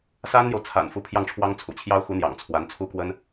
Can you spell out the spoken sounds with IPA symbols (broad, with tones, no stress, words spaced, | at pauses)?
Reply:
sa˥nn̪jo˨ʊ̯t͡sʰa̰˨˩n fu˧˥pʰjɑ˥˩ŋʈ͡ʂʰwɑ˥ŋt͡sʰṵ˨˩ t͡ɕʰjɑ˥ʊ̯xu˧˥ n̪jɑ̰˨˩ŋt͡sʰwa˧˥nt͡sʰu˥kwə˥n